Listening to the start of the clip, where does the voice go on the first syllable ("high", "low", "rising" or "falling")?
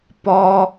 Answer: high